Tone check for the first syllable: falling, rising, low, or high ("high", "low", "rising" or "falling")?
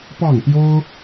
falling